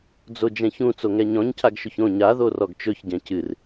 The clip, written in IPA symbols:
d͡z o d͡ʒ ɛ̃ ç ũ t͡s o ŋ ɛ ɲ ɔ̃ ɲ cʰ a ɡ ʃ ɵ ç õ ɲ a ð o r ɔ ɡ t͡ʃ ɵ ç ɟ ɛ̃ c ɨ r

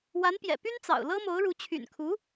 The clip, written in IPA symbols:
w a˧˥ n p j ɛ̰˨˩ p y˥ n t͡s ɑ̰˨˩ ʊ̯ l ɤ˥ m o˧˥ ʊ̯ ɻ u˧˥ t͡ɕʰ y̰˨˩ n kʰ u˧˥

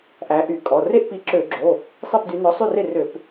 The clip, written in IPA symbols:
ʔ æ˨˦ ʔ y˧˩˧ kʼ ɔ˩˧˩ r e˥˨ ʔ p i˨˦ ǁ ø˧˩˧ ɡ͡ǁ o˩˧˩ | sˤ i˥˨ p d y˨˦ n ɔ˨˦ sˤ ʉ˥˨ r e˥˨ r ø˧˩˧ p

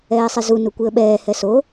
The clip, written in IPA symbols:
ɛː sˤ e z u n u kʷ i ə̯ ɓ ɛː h ɛ s o

